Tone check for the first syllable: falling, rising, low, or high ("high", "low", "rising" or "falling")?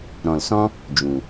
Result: low